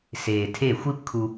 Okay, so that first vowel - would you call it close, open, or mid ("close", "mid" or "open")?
mid